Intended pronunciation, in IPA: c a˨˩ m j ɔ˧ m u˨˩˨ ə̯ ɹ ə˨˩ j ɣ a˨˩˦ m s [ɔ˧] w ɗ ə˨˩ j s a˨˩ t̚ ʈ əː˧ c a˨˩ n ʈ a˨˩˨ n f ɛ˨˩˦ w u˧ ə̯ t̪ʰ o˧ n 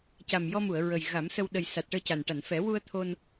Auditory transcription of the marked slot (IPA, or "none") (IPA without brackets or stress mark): ə˧